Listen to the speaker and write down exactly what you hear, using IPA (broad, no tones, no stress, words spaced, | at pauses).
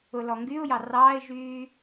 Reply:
ʊlɔŋɡyʊ̯jɑ rɑːɪ̯ʒyː